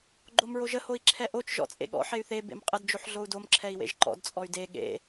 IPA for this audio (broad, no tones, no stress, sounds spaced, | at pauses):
ɡ͡ǃ o m ɹ o ʒ ə h o i̯ ǁʰ ɛ ʔ o t͡ʃ ʒ ɔ̰ t͡sʼ ḛ ɠ ɔ̰ ħ e y̯ θ e b ḛ m qʼ ə d d͡ʒ o ħ ɮ o u̯ d o m ǁʰ ɛ i̯ w ḛ ʒ ǃ ɔ̰ d t͡sʼ ɔ y̯ d e ɠ ḛ